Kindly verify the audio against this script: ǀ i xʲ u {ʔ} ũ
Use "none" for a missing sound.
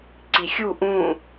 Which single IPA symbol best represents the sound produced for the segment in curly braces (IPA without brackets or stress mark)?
ʔ